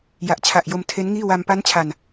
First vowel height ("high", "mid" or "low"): low